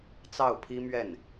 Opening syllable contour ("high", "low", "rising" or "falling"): falling